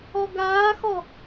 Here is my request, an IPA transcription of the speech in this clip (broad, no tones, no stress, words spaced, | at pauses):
ɔɡaːxɔ